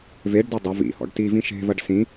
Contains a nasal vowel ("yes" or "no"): yes